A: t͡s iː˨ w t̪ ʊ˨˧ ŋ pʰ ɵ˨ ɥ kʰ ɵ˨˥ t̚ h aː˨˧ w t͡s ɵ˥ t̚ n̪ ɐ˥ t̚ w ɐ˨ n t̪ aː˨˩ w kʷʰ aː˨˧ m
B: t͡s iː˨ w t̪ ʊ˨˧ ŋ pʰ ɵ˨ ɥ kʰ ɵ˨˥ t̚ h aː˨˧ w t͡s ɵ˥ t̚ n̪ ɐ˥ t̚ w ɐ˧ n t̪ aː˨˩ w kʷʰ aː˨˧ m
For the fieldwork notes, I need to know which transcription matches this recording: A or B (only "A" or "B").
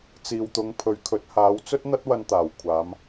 B